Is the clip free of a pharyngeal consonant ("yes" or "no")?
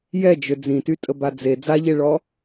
yes